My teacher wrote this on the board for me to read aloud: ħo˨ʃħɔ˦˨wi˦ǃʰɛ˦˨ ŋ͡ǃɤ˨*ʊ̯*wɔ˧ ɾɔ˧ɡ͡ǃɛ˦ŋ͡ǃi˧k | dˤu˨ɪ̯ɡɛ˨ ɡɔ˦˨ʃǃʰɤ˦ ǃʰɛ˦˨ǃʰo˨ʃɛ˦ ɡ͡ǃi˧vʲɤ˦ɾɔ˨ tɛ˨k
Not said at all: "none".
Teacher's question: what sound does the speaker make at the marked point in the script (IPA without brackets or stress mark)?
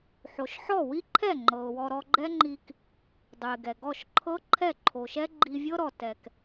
ʊ̯